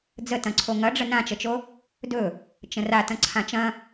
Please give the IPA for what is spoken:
d͡zətɐ̃ǀʰo ŋɐɖ͡ʐə nãt͡ʃət͡ʃo | dɵ | t͡ʃə̃ra tɐ̃ǀʰãt͡ʃɐ̃

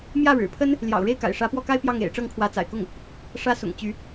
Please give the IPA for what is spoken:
mjä˥˩ ɻɻ̩˨˩pʰə˥n | ljɑ̰˨˩ʊ̯ɻe˥˩ɪ̯ka̰˨˩ɪ̯ ʂä˧˥pwɔ˥˩ka˥ɪ̯ pjɑ˥˩ŋḛ˨˩ɪ̯ ʈ͡ʂɤ˥˩ŋkʰwä˧˥t͡sa̰˨˩ɪ̯kʊ˥˩ŋ | ʂä˧˥ sʊ̰˨˩ŋt͡ɕy˧˥

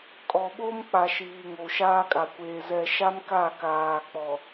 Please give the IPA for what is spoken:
kʼɔ˨ɓoː˦mk͡pa˨ ʃiː˨ ŋo˨ʃaː˦kʼa˨kʷeː˨ zɛ˨ʃa˦m ka˦˨kaː˨k͡pɔ˨

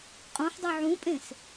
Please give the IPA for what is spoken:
qʼõħdˤø ʕũpʼẽs

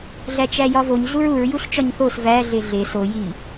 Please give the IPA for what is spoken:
ɮæt͡ʃæjɒvoɲ ɮuɹuɹ juɬt͡ʃɒɲθos væ ɮeɮe so ji

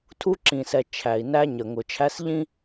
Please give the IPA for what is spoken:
tʰu˦ǁĩ˨sɛ˨ t͡ʃʰæ˨i̯næ˦ɲə˨ ŋʊ˨t͡ʃʰæ˦sʎĩ˦

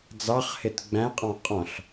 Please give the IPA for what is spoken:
d͡zɑχhɪt ɡ͡bæ̃qʼɑ̃ qʼɔ̃ɬ

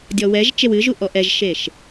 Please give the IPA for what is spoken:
dʲɔwɛʒt͡ʃew ɨʒu ʔɔʔɛʒʃeʃ

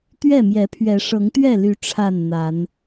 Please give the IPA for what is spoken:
t̪ɥɛ˥˨mjɛ˨˦pʰɥɛ˨˦ ʂɤ˨˦ŋt̪ɥɛ˥˨ly˨˦ ʈ͡ʂʰa˥˨nn̪a˨˦n

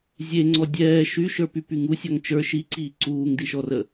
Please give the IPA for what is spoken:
zʲeŋ͡ǀɔ dʲɛː ʃyʃə˞pypyŋ usʲɒŋ t͡ʃə˞ ʃiǀiː ǀuːŋdiʃɔrə

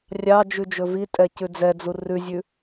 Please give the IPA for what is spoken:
rʲɑ d͡ʒʉd͡ʒɵvitʼɛ cʉd͡zɛd͡zu rʉzʲʉ

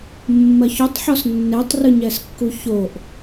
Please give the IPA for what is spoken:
mːɐçotˤħɔs nːetˤrɨɲɛskːu çoʔ

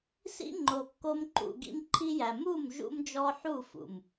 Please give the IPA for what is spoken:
sḭ˦ŋ͡ǃo˨kːo˧m ǃṵ˨ ɡḭ˦mǃʰi˦jæ˨ mu˦˨m ʒṵ˦md͡ʒɔ˦ ħu˦˨fṵ˨m

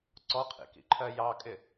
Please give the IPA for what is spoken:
ǀɔqʰḭkḭǃʰɜ jɑkʼɪ

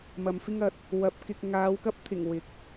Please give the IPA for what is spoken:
mɐ˨mfɪ˥ŋɐ˨˥t̚ | wɐ˨p̚ kɪ˨k̚ŋaː˨˧wkɐ˥p̚t̪ʰɪ˨˩ŋ wɪ˨k̚

